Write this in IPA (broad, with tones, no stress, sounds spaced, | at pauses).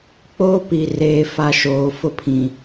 k͡p oː˦ p i˨ r eː˨ f a˨ ʃ oː˨ f ʊ˦ pʰ ĩ˨